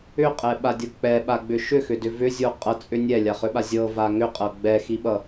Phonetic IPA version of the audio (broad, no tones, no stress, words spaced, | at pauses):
ʏqʼɛɓadʲʌ k͡pɛɓaɡ͡bʏ ʃʏxʏdʏ vʏzʲo qʼʌt͡sʼʏ nʲɛlʲaχʏɓa zʲɤva ŋʏqʼɤ ɡ͡bɛxiɓʌ